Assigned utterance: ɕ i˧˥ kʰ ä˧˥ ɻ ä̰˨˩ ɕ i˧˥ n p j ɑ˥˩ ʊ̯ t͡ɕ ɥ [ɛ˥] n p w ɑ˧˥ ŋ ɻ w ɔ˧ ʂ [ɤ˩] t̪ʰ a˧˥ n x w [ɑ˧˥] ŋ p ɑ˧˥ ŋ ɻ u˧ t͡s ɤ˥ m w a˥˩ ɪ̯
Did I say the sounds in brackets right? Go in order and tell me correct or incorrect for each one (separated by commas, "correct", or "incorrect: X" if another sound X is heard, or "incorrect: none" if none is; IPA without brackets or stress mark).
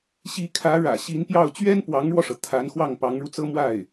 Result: correct, correct, incorrect: ɑ˥˩